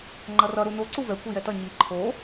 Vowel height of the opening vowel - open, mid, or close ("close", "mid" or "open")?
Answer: mid